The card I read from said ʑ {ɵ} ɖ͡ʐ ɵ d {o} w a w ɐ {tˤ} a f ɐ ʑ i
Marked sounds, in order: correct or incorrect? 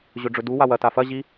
correct, incorrect, incorrect

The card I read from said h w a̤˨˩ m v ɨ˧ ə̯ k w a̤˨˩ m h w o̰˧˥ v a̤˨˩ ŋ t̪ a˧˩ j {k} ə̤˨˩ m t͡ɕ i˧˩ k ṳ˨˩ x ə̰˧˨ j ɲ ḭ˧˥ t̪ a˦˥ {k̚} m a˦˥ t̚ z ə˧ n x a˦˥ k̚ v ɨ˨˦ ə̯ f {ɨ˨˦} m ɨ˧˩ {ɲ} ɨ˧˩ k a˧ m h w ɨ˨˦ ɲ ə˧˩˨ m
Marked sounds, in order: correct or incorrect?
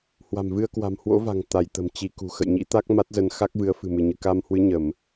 incorrect, correct, incorrect, correct

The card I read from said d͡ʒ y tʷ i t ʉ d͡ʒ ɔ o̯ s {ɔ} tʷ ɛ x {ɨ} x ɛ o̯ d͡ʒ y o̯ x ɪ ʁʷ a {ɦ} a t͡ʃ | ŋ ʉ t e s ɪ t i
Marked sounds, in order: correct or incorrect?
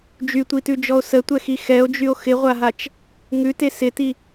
incorrect, incorrect, correct

